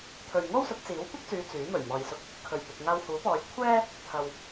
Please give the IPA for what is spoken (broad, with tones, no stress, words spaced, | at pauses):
t̪ʰɵ˨ɥŋo˥wsʊ˨˥k̚t͡siː˨˥w kʷɪ˥k̚t͡syː˨˧ t͡syː˨˥ mɵ˨˩ɥmɔː˨jsʊ˧k̚ | kʰɵ˨˩ɥ pɪ˨k̚ŋaː˧whuː˨˥pɔː˨˧j kʷʰɛː˥ | t̪ʰɐ˨w